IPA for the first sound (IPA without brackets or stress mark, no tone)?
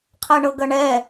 qʰ